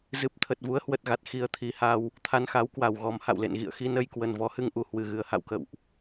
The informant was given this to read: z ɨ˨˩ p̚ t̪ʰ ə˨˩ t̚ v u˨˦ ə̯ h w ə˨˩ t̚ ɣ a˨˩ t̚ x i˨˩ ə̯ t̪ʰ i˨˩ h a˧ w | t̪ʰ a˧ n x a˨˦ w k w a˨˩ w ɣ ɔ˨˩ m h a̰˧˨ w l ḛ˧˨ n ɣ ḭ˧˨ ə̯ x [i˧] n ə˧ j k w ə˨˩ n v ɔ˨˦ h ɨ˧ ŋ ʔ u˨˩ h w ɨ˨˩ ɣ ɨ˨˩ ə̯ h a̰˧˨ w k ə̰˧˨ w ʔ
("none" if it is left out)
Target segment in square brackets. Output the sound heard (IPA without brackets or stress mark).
i˧